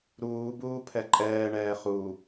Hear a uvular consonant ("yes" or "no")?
yes